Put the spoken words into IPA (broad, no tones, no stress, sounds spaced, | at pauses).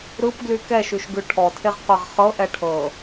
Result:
ɾ ɯ p ɡ l y k ɛ ʃ y ʃ ɡ ʉ ʈʰ ɔ tʰ e ʁ qʷ ɛ ʁ χ ɤ ʔ ɛ ʈʰ ɤ